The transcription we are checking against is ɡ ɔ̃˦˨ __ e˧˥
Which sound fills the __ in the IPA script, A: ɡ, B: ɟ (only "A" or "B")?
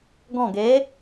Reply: A